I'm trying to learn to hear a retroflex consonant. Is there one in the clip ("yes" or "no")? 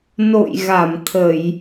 no